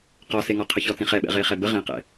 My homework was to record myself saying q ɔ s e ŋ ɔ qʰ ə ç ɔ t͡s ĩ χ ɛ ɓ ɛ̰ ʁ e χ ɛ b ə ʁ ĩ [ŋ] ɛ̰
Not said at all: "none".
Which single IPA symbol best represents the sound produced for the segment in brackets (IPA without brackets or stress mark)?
q